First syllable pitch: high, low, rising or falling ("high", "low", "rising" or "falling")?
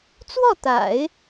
falling